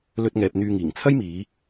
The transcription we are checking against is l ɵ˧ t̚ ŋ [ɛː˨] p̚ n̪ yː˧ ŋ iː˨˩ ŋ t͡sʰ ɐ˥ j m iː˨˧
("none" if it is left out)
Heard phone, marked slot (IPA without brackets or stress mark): ɛː˨